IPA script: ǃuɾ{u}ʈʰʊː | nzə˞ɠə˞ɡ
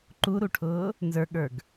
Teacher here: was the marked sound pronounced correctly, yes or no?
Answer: yes